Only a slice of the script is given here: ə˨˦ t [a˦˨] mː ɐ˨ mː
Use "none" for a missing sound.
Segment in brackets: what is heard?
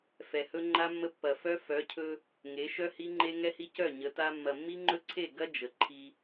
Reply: a˦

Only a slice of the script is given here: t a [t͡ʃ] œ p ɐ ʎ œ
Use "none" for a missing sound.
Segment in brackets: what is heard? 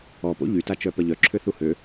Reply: t͡ʃ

